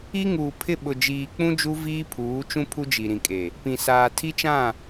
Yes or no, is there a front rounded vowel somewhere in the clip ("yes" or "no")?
no